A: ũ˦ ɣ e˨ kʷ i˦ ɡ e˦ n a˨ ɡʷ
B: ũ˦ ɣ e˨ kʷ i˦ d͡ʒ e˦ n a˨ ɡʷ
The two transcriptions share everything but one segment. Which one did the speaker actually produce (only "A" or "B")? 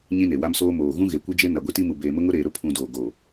B